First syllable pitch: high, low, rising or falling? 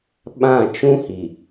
falling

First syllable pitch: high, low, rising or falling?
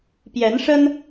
rising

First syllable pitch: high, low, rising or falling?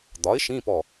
rising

